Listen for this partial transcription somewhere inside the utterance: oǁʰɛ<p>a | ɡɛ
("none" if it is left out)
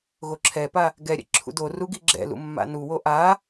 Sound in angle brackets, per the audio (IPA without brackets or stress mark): p